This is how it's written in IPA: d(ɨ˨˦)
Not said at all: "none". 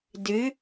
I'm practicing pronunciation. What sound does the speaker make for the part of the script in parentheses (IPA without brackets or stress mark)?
ɨ˨˦